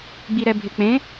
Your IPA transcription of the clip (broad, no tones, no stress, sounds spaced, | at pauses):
ɡ͡b i ɾ ɛ bʱ ɪ k͡p ẽ